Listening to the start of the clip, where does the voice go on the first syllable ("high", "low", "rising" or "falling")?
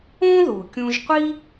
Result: high